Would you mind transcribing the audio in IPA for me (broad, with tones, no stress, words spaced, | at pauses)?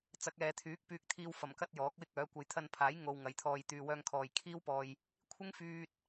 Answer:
t͡sɐ˨˥k̚ɛː˨ t̪ʰyː˨˥k̚ pyː˧k̚t̪ʰiː˧wfɐ˨˩mkɐ˥t̚ jɔː˨˥k̚wɪ˥k̚œː˨˥ kʷɐ˨jt̪ʰɐ˧npʰaː˨˥j ŋo˧wŋɐ˨jt̪ʰɔː˧j t̪yː˨wœː˧ŋkʰɔː˨j kʰiː˥wpɔː˧j | kʷʰɪ˥ŋfyː˧t̚